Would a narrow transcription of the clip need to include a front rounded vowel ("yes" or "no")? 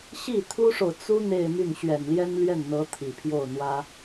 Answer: yes